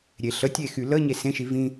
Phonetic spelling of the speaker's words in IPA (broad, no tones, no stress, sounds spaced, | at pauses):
ɾʲ e ɬ ə tʲ e x y l ə ɲ e s ẽ ʃ i v ĩ